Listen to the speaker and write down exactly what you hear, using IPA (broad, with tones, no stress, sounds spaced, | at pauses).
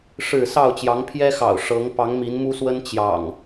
ʂ ɻ̩˥˨ s ɑ˥˨ ʊ̯ t͡ɕ j ɑ˨˦ ŋ pʰ j ɛ˦ x ɑ̰˨˩ ʊ̯ ʂ ɤ˨˦ ŋ p ɑ˨˦ ŋ m i˨˦ n m u˦ s w ə˦ n t͡ɕ j ɑ̰˨˩ ŋ